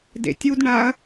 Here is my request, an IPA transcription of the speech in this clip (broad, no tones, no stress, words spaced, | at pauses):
dḛtʲudɳaɐ̯